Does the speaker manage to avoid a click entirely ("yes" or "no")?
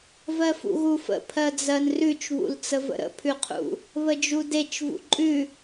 no